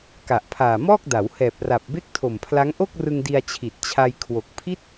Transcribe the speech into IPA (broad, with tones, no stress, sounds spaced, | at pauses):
k a˨˩ ʔ pʰ aː˨˩ m ɔː˥˩ k̚ d a˩˦ w h ɛː˨˩ p̚ r a˨˩ p̚ b e˥˩ k̚ tʰ o˨˩ m pʰ l a˦˥ ŋ ʔ o˥˩ k̚ r ɯ˧ ŋ d i˧ a̯ t͡ɕʰ i˨˩ t̚ t͡ɕʰ a˧ j kʰ w o˨˩ k̚ pʰ i˥˩ t̚